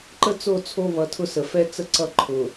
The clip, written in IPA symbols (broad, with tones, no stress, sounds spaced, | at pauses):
ǃ ə˦ t͡s o˦˨ t͡sʰ o˦ β ʌ˨ tʰ ʊ˦ s ə˨ f ɛ˦ t͡s ə˦ ǀ ʌ˦ ǃʰ ʊ˨